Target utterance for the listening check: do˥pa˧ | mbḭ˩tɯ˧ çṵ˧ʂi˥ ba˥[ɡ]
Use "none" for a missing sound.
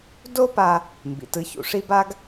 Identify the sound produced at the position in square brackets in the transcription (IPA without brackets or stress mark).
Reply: ɡ